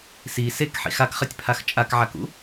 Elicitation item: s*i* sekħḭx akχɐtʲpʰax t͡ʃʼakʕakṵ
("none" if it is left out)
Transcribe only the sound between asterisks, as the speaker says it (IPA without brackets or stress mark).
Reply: i